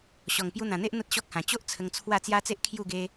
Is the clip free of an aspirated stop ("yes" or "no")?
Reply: no